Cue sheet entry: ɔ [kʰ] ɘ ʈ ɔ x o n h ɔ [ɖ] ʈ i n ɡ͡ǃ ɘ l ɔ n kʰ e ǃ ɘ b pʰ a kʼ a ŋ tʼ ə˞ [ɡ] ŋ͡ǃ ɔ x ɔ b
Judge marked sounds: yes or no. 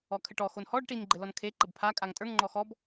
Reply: yes, yes, no

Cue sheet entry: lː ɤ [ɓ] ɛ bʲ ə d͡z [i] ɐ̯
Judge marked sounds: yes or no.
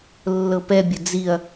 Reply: no, yes

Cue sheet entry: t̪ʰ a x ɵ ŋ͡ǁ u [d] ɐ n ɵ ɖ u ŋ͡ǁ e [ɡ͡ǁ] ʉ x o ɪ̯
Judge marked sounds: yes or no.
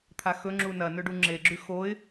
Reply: no, yes

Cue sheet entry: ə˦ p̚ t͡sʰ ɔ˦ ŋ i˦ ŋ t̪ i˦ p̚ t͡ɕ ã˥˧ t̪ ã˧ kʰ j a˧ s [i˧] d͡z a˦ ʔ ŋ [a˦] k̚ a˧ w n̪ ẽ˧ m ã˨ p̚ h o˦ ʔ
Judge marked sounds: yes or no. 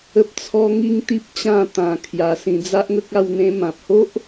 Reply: no, no

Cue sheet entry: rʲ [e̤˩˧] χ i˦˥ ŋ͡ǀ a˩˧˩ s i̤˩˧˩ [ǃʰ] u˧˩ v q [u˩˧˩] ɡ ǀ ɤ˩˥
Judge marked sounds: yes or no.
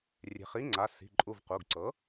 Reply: yes, no, yes

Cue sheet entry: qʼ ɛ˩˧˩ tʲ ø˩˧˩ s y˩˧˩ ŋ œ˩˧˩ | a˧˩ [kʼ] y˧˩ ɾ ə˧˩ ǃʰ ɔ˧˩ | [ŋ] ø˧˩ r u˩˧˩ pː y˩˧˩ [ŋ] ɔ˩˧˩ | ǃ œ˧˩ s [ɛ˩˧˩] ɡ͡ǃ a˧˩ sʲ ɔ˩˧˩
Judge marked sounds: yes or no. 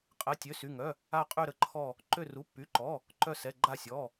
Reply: no, no, no, yes

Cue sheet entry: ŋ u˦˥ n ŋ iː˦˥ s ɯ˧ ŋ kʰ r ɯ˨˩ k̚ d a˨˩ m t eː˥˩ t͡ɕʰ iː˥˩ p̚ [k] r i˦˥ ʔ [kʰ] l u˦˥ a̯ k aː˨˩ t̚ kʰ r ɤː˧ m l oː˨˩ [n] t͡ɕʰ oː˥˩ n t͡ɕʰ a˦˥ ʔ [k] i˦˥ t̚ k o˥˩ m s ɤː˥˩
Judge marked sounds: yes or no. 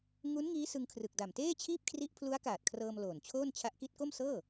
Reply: no, no, yes, yes

